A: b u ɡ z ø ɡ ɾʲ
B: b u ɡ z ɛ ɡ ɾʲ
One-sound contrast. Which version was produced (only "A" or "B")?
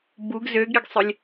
A